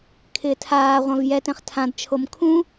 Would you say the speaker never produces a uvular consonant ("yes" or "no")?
no